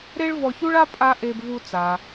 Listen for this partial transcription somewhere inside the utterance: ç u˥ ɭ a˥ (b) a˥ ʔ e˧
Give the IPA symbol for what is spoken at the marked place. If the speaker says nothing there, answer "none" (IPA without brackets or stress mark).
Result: pʼ